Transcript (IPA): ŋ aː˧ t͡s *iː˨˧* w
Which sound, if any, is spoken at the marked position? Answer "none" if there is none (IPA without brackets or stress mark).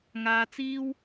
iː˥